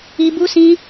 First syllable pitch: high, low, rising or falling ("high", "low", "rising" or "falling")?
high